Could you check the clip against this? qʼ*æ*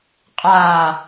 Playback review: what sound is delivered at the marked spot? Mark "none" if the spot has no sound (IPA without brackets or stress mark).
a